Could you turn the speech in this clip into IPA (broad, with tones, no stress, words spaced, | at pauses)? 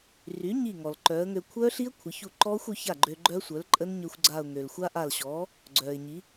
ry˩˥ɲi˧˩ŋɔ˩l ǃœː˩˥ə̯ŋø˧ kʷʰœː˦˥ɬi˦˥ə̯ kʷʰə˩˥çu˥˩ ǃɔː˦˥xʷø˩˥ ça˥˩ɡ͡ǃø˧ɡ͡ǃœ˦˥sʷœ˩˥l ǃʼə˦˥nɲø˧xʷɡ͡ǀa˧˩ʊ̯ ŋø˩lxʷa˦˥ʔa˧˩lɕɔː˩˥ | ɡ͡ǀœː˩ɪ̯ ɲi˩˥